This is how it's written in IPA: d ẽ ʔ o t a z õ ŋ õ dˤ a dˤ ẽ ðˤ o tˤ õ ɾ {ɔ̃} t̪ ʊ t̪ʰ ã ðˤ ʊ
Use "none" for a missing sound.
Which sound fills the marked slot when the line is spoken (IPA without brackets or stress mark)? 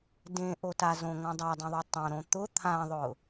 õ